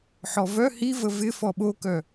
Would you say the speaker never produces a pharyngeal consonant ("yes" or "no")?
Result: no